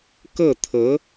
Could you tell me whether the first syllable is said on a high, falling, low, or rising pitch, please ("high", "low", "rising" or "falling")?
falling